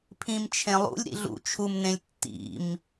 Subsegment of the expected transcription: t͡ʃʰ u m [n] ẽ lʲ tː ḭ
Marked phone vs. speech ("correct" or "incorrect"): correct